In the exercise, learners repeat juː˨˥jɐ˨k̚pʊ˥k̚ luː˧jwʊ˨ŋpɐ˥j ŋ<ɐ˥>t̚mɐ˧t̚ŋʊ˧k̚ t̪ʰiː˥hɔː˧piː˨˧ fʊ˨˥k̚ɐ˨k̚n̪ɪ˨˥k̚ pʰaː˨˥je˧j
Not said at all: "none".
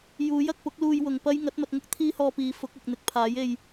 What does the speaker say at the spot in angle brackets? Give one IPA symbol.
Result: ɐ˨˥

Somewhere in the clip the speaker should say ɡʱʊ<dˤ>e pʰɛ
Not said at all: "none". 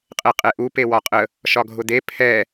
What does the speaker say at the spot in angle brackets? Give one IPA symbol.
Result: d̪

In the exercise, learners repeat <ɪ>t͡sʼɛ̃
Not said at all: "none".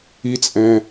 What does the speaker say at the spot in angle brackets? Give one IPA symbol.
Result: i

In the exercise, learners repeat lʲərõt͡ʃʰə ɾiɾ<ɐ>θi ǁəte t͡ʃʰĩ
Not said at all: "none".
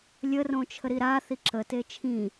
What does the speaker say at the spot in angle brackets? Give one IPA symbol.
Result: a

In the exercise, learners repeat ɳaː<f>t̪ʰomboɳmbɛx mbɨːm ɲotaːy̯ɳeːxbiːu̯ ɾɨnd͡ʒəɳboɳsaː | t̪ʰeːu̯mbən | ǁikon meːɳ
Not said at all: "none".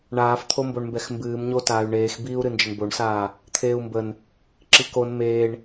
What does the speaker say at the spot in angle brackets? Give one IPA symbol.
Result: f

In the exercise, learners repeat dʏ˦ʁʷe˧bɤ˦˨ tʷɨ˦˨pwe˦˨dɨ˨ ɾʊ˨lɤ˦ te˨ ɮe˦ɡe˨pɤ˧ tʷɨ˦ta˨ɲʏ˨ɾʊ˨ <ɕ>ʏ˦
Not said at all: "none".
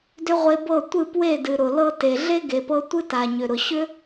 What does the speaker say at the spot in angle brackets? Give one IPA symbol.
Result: ɕ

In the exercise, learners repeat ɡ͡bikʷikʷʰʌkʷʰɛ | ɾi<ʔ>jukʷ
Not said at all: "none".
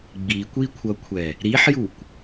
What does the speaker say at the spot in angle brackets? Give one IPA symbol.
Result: ħ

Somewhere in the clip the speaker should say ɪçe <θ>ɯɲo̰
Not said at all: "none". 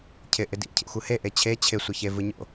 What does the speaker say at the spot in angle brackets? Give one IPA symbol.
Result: v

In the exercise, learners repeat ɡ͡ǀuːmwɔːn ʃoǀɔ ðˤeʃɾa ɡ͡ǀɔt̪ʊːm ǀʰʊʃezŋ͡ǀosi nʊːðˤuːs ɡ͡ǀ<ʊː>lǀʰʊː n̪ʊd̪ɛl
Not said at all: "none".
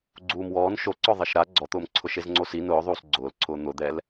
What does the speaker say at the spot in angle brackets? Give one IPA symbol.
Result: ʊː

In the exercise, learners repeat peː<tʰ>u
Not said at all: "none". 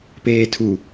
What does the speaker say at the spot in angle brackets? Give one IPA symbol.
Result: tʰ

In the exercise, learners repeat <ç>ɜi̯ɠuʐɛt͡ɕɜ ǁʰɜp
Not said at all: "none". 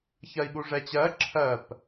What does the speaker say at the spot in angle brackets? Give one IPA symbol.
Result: ç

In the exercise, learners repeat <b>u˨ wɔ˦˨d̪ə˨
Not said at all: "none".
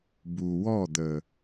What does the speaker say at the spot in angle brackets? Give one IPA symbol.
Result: b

